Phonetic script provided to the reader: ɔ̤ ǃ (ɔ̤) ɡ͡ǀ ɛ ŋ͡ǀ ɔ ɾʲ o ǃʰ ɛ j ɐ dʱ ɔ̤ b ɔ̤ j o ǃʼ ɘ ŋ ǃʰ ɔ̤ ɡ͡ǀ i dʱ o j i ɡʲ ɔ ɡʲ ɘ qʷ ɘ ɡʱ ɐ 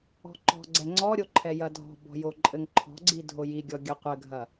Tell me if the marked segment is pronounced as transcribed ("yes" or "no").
yes